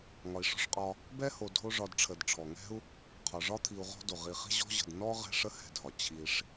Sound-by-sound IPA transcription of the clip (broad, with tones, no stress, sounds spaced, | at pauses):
ŋ ɒ˨ i̯ ʂ ɔ̤˥ ʂ qʼ ɒ˦ | b ɛ˥ h o˨ dʱ o˦ ʐ ɒ˨ d ʈ͡ʂʰ ə˩ d ʈ͡ʂʰ ɔ˩ ŋ ɛ̤˥ u̯ | qʰ ɒ˩ ʐ ɒ˥ t̪ʰ i˨ u̯ ʁ ɔ̤˦ d o˩ ʁ i˨ χ i̤˥ ʑ ɔ̤˦ ʑ ə̤˩ d n ɔ˥ ʁ ɛ̤˦ ʂ ə˦ h ɛ̤˨ dʱ ɒ˩ t͡ɕʰ i˨ ʂ